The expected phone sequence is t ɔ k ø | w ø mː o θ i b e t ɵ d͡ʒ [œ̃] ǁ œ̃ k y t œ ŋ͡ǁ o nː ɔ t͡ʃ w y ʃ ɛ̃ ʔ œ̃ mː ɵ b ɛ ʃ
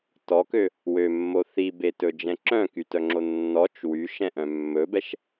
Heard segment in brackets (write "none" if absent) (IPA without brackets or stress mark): ɛ̃